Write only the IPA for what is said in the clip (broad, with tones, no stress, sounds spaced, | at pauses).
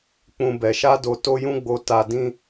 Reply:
k͡p ũ˧ b ɛ˨ ʃ a˧ d o˨ t o˧ j ũ˧ ɡ͡b o˨ t a˨ d ĩ˧